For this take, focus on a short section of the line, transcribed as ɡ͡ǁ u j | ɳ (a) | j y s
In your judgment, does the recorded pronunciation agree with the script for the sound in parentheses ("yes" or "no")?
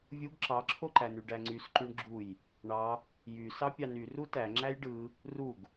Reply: no